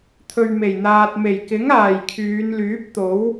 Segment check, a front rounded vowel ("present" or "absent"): present